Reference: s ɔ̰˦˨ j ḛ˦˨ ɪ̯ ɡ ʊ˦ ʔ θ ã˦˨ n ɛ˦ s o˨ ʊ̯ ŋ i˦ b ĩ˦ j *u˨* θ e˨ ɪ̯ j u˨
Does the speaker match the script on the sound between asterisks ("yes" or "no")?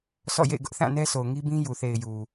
yes